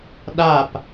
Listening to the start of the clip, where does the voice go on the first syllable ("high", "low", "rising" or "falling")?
falling